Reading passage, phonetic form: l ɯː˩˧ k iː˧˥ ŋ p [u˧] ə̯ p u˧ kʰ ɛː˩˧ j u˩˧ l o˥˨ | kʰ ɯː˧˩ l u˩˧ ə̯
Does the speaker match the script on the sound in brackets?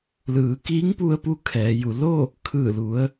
yes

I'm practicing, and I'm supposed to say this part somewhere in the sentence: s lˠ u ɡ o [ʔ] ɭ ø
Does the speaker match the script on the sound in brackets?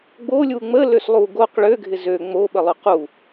no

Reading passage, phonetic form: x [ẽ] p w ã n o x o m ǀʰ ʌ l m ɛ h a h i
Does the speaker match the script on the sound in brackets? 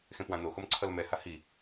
yes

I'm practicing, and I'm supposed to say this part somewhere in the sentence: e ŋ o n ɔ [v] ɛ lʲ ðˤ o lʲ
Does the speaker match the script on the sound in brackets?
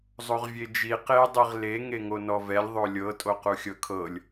yes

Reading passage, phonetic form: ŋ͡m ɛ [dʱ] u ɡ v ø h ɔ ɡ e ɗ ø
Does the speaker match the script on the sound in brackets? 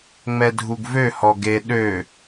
yes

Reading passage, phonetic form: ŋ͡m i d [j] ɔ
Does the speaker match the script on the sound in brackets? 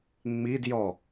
yes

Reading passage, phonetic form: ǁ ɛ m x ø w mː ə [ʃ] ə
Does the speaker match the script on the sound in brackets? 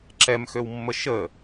yes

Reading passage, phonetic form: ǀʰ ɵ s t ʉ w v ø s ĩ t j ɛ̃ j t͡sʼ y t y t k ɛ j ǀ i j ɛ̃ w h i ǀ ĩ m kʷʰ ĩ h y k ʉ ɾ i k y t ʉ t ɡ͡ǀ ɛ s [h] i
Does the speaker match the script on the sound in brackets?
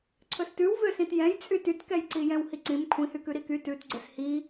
yes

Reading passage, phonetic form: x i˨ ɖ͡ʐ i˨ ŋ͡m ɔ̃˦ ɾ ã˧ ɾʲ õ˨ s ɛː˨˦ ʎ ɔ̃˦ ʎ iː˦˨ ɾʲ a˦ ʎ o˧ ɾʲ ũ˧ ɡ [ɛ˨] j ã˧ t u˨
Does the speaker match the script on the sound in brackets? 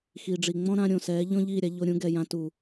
yes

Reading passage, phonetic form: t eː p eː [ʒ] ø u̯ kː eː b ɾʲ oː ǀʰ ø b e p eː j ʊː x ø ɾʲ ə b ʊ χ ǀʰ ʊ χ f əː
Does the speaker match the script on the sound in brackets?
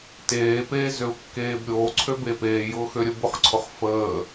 no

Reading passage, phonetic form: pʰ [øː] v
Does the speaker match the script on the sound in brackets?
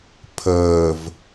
no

